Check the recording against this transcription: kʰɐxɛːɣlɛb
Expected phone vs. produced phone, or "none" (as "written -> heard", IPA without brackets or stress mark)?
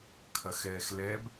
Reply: ɣ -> x